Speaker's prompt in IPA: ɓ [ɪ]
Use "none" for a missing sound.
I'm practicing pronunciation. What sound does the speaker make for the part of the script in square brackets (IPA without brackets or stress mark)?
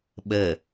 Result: ə